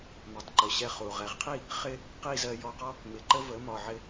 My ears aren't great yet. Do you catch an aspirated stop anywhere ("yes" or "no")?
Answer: yes